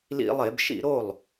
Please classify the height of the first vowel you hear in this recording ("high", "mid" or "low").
high